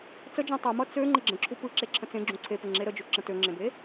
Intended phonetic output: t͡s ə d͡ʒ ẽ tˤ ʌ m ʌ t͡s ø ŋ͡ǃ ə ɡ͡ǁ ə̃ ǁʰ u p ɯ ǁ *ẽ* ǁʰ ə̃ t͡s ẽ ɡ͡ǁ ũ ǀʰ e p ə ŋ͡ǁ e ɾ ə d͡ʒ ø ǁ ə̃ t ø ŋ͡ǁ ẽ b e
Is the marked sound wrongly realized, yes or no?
yes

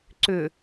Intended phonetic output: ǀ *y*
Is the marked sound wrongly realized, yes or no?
yes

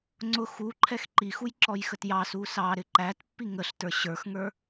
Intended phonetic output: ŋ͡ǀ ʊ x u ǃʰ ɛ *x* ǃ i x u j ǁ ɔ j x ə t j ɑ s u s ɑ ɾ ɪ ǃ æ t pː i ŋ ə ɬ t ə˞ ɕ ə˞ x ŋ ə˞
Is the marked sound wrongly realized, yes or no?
no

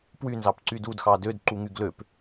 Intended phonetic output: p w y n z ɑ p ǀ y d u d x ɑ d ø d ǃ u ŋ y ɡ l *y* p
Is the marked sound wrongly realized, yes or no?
yes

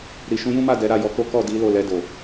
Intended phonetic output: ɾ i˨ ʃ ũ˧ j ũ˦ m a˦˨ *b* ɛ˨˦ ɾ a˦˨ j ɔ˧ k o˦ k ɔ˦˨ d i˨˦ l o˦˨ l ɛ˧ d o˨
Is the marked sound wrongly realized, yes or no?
yes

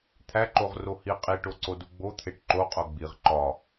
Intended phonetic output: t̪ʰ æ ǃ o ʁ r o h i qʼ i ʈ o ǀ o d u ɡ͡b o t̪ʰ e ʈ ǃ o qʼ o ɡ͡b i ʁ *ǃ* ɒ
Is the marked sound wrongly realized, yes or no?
no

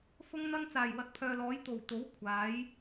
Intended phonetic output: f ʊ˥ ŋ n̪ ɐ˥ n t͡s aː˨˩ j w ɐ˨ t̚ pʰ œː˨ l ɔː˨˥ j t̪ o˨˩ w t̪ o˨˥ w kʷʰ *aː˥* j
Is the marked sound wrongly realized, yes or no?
yes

